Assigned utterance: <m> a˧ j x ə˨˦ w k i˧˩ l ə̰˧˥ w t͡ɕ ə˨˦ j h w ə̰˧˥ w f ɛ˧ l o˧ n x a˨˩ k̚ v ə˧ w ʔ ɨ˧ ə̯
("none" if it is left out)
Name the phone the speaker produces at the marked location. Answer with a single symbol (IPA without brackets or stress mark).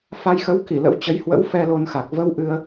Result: f